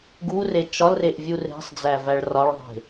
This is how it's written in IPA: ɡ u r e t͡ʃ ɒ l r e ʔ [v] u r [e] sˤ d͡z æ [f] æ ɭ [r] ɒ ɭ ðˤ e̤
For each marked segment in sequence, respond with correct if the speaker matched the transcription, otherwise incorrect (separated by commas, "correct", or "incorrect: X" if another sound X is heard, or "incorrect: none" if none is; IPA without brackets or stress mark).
incorrect: vʲ, incorrect: e̤, incorrect: v, correct